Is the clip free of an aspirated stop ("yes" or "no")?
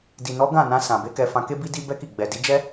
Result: yes